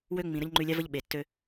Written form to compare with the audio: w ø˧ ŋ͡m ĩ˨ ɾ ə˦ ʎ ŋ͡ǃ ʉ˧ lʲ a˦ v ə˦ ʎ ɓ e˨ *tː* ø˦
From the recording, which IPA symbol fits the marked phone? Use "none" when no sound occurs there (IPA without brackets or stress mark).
tː